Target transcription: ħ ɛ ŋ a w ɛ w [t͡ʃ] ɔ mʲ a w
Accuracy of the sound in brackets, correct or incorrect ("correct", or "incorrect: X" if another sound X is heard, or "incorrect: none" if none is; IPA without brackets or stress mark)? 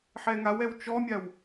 correct